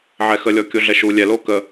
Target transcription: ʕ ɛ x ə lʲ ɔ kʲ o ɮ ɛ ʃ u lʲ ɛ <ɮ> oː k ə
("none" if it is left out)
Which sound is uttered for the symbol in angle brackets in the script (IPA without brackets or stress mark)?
l